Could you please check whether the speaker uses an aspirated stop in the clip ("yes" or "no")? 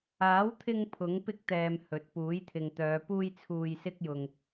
yes